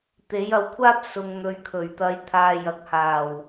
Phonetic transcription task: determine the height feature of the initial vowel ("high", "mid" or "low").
mid